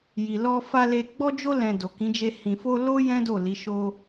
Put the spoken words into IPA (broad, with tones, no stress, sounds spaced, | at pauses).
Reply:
j i˨ l ɔ˧ f a˧ l e˧ ɡ͡b ɔ˦ d͡ʒ o˦ l ɛ̃˧ d o˨ k ĩ˨˦ d͡ʒ e˧ h ĩ˨ f o˧ l o˦ j ɛ̃˦ d o˦˨ l i˨˦ ʃ o˧